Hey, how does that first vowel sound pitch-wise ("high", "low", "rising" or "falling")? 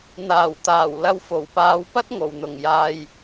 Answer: low